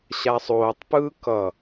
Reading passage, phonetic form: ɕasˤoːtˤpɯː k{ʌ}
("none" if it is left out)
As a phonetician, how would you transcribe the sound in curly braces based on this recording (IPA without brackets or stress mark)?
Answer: ʌ